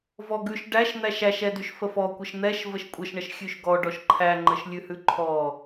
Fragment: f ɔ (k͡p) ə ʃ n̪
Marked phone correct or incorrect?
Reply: incorrect